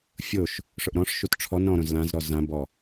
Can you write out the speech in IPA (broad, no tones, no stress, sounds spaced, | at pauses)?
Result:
fʲ o ʃ | ʂ ʊ ʔ ɾ ɔ̃ ʂ ʃ u t ʈ͡ʂʰ ɔ n ɾ ɔ̃ ɾ õ z l ã z ɾ ɔ z ã b ɔ